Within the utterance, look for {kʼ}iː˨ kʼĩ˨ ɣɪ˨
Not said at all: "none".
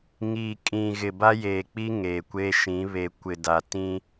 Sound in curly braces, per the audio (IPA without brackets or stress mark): ŋ